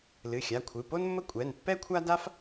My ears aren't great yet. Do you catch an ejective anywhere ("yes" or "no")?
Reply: yes